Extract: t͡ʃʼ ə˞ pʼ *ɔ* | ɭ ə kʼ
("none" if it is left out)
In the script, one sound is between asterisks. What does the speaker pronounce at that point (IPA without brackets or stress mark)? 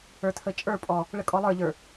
ɔ